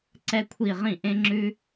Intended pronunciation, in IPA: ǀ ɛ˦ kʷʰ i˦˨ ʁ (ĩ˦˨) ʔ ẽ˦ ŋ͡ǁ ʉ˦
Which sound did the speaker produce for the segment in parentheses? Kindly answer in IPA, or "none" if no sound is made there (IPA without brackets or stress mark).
ĩ˦˨